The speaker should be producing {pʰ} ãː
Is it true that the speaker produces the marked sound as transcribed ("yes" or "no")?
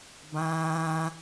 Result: no